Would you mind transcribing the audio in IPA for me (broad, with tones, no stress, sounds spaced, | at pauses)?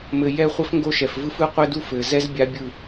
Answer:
m ɘ˨ j ɛ˦˨ χʷ ɘ˦ f ŋ ɡ o˦ ʃ ɛ˨ f v ɯ˦ f ɯ˦ qʷ ɘ˦ d u˦ f ɘ˨ z ɛ˦ z bʲ a˦ bʲ ɯ˦˨